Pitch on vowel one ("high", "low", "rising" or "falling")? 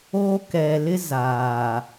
high